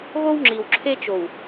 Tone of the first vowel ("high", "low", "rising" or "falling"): high